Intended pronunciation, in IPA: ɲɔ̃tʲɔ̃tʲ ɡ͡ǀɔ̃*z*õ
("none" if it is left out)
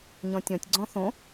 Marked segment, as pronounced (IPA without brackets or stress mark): θ